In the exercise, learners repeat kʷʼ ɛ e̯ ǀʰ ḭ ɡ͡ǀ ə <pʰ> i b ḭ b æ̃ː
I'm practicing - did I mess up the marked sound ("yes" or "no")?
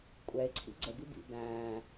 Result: yes